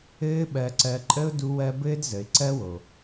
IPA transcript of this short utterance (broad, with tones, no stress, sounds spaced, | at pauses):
ɘː˦ ɓ ɜ˧ ǀ ɜ˧ ǃʼ ə˦ ʊ̯ d u˧ w ɜ˧ b ɘː˦ d z ə˨ ɪ̯ ǀ ɜ˦ w o˨